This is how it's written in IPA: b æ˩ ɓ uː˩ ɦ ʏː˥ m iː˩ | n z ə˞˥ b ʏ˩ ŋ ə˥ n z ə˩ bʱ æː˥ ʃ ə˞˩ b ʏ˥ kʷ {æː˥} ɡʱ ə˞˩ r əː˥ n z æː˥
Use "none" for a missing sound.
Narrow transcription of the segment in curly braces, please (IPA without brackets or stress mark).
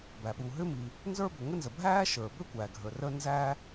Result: æː˩